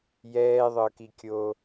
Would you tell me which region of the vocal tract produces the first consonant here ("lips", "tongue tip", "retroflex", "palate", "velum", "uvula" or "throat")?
palate